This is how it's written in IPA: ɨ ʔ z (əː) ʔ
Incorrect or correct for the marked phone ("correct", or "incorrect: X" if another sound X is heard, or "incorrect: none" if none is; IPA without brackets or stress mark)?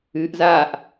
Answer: incorrect: aː